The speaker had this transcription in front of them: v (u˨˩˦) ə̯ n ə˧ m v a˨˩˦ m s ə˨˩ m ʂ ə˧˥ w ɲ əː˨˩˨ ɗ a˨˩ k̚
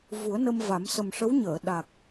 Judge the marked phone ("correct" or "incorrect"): correct